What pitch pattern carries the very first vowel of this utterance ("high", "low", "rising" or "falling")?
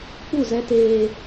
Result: falling